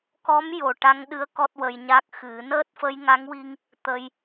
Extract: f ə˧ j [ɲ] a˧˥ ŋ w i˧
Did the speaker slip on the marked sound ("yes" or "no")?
yes